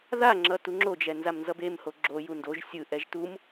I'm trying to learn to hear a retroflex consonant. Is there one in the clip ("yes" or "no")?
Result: no